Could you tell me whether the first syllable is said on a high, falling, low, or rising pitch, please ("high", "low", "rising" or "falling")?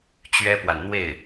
high